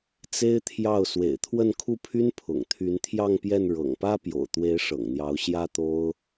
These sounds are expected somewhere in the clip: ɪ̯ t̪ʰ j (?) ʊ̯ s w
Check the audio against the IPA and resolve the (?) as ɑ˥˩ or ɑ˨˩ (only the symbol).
ɑ˥˩